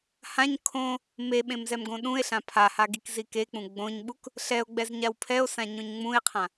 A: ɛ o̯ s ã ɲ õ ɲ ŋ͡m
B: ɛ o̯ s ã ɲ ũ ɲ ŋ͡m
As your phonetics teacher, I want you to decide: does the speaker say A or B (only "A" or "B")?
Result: A